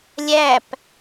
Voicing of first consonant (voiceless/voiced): voiced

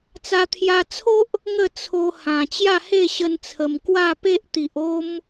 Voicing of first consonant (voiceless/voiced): voiceless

